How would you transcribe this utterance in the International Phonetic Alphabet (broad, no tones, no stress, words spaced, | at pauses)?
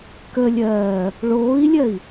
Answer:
kə lʲɜː | ɭoːi̯lʲɜi̯